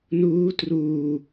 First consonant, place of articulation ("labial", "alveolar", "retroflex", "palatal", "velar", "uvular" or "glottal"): alveolar